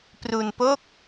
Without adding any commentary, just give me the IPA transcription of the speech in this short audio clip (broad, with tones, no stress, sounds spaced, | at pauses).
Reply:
p r u˧ n p o˥˩ k̚